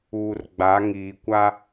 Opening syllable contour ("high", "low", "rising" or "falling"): low